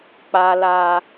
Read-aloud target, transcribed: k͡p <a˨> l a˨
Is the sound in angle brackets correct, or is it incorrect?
correct